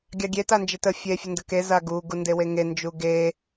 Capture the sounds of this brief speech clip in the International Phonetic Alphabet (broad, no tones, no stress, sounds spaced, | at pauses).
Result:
ɡʲ ɑ ɡʲ e t a n d͡ʒ ɪ t ə fʲ e fʲ ə n d ə k e z a ɡ u ɡ u n d e w e ŋ e n d͡ʒ u ɡ e